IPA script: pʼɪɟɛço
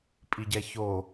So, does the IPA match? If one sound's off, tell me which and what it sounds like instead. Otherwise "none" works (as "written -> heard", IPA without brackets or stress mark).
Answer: ɪ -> i